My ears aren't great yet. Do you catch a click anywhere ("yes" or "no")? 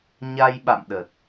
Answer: no